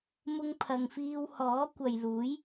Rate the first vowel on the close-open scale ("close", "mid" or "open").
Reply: close